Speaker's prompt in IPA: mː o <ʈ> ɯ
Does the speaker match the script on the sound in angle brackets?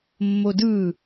no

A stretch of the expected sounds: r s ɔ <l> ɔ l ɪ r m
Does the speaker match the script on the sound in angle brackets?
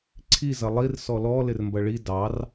yes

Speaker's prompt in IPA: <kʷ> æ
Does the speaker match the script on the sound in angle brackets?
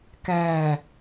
no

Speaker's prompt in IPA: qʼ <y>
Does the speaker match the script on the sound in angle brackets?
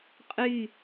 yes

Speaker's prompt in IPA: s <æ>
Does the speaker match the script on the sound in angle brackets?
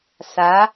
no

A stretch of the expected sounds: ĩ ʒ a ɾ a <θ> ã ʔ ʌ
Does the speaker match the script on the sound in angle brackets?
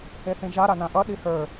no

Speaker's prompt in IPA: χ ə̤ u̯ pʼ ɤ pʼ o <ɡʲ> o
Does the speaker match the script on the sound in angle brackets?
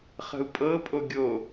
yes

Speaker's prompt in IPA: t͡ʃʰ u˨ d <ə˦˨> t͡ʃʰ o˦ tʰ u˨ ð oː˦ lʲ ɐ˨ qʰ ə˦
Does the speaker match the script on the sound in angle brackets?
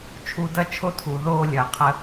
no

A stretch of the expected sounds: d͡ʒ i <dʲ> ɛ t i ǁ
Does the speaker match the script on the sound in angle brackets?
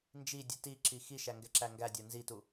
yes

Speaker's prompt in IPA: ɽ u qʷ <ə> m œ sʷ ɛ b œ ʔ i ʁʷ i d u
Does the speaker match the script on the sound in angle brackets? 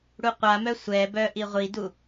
no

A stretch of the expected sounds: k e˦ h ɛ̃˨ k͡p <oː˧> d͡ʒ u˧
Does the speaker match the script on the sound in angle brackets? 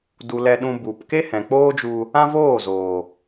no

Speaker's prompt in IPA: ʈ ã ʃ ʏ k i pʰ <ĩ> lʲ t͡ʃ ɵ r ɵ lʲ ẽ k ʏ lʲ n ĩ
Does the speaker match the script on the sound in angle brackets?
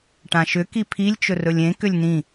no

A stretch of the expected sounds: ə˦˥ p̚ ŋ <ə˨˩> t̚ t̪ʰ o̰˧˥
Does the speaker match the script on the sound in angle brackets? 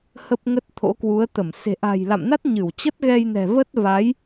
no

